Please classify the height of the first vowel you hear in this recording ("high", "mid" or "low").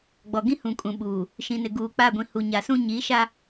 mid